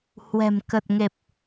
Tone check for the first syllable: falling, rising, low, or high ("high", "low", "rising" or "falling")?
low